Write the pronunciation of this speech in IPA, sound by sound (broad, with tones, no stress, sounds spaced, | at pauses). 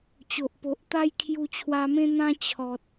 t͡ɕ o˨ ʔ p o˨ ʔ t̪ a˦ j kʰ j u˧ t͡ɕʰ w a˧ m ẽ˦ n̪ ã˦ t͡ɕʰ ɔ˨ t̚